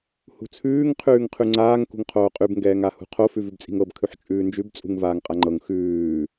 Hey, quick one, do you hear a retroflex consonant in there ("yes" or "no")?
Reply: no